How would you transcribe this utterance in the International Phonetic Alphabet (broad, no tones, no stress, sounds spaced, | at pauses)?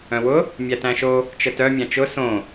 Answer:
œ̃ w ʊ | mʲ æ t æ̃ ʃ o | t͡ʃ ə t œ mʲ æ̃ t͡ʃ ʊ s õ